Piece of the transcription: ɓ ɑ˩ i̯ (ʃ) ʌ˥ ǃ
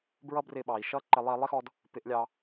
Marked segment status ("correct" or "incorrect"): correct